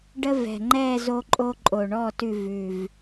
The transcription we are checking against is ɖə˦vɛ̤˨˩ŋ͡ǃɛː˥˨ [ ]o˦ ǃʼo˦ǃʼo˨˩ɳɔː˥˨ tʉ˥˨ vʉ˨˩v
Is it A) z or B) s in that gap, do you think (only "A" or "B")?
A